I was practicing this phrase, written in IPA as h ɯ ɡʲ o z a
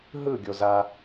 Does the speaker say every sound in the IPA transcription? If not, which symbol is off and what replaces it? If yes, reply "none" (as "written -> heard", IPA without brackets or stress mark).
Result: h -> ɦ